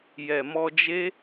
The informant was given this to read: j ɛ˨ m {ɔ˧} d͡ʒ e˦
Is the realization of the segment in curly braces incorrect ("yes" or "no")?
no